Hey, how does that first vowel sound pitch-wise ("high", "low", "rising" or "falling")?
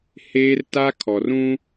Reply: high